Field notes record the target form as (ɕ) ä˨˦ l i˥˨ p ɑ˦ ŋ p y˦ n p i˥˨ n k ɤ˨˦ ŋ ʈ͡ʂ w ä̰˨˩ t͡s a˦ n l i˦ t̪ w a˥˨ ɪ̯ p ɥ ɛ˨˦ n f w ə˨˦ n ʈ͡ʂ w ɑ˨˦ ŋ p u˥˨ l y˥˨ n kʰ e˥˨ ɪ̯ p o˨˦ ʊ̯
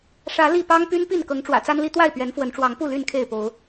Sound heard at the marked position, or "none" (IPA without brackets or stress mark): ʂ